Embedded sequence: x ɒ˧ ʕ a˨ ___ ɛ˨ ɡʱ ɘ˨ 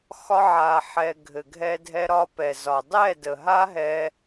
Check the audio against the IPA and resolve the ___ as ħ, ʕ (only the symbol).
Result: ħ